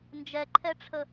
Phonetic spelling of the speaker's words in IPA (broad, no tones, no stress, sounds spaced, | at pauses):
n d͡ʒ ɛ ǃʰ ɛ ʈ͡ʂʰ ə